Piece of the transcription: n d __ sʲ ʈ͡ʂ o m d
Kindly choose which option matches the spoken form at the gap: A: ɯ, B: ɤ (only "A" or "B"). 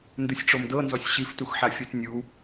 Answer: A